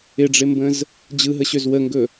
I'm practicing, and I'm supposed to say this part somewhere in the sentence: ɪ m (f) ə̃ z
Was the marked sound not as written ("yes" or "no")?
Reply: yes